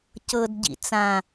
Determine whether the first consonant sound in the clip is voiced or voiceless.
voiceless